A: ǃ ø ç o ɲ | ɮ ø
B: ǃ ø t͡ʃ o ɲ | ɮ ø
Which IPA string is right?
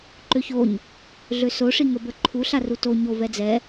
A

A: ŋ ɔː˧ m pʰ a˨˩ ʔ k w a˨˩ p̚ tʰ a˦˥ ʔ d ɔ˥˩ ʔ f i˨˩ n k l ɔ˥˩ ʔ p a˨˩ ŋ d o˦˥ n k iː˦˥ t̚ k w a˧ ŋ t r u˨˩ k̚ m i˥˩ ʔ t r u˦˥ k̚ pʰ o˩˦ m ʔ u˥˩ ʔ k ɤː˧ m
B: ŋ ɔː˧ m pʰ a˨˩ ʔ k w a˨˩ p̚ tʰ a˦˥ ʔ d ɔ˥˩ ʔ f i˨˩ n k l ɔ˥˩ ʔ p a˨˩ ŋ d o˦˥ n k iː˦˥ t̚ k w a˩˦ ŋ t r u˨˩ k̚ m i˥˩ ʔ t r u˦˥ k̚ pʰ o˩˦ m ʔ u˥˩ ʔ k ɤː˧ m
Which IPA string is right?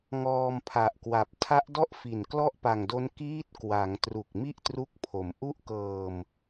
B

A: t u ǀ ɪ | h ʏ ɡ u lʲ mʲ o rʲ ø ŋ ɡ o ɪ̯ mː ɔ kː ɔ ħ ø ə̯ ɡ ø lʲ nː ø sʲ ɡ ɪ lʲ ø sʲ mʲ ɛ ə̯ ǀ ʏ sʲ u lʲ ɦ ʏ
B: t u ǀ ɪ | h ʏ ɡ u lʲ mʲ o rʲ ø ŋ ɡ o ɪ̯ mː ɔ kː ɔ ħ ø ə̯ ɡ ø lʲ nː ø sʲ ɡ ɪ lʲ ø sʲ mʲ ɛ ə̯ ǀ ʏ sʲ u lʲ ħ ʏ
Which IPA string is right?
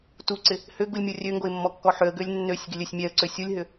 A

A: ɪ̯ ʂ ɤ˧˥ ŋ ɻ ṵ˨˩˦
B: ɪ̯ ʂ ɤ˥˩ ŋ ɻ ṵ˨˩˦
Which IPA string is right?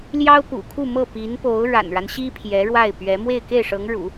A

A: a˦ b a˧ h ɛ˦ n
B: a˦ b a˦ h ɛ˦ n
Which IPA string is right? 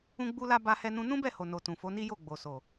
B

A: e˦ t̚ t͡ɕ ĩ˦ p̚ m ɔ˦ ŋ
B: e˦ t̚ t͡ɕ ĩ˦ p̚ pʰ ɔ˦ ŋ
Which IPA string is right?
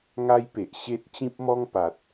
A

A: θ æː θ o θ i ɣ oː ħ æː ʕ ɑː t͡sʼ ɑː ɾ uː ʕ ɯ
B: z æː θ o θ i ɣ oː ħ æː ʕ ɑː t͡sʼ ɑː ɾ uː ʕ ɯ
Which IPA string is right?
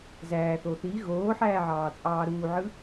B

